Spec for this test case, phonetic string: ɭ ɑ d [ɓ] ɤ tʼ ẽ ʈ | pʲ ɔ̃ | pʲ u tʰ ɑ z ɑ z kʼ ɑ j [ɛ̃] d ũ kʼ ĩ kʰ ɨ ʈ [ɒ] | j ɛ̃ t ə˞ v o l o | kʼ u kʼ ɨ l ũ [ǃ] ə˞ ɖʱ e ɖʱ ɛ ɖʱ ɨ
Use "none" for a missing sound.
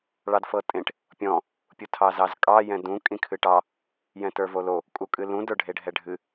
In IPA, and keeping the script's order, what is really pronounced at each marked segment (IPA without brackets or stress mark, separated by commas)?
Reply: f, ɛ̃, ɑ, d